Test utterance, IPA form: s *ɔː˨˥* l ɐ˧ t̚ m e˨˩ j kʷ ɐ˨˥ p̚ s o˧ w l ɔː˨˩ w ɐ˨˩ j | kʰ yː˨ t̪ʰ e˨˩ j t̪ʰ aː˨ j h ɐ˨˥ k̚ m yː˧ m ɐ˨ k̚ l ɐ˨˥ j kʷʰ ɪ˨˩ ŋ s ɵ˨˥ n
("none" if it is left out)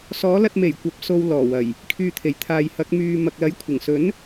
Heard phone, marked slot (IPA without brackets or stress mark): ɔː˨˥